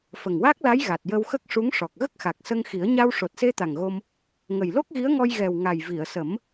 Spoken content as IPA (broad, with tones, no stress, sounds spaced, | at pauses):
f ə˨˩ ŋ w a˦˥ k̚ l a˧˥ j ɣ a˨˩ t̚ j ə˧ w x ə˦˥ k̚ ʂ u˧˥ ŋ ʂ ɔ˨˩ k̚ ɣ ə˦˥ k̚ x a˨˩ k̚ s ə˧ ŋ x i˨˩˦ ə̯ ɲ a˧ w ʂ o˨˩ t̚ s e˧ t̪ a˨˩ ŋ ɣ o˧ m | ŋ ə˨˩ j l o˦˥ k̚ ɣ i˧˥ ə̯ ŋ ɔ˧ j ɣ ɛ˨˩ w ŋ a˨˩ j v i˨˩˨ ə̯ s ə˨˩˦ m